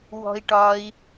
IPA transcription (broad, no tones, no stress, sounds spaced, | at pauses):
w ɔ̤ i̯ ʈ ɒ i̯